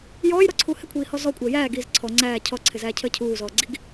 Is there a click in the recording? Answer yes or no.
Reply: yes